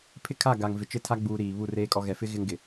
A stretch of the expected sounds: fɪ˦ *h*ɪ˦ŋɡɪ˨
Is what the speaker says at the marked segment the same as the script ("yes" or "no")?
no